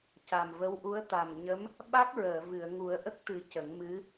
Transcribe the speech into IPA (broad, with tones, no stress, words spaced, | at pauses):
ca˨˩mvə˧˥wʔu˧˥ə̯ t̪a˨˩m ɲə˧˥m | ɓa˦˥k̚ ɹəː˨˩˨vɨ˨˩˨ə̯ ŋu˨˩˦ə̯ʔə˦˥k̚t̪ɨ˨˩˦ cə˨˩˦ŋ mɨ˧˥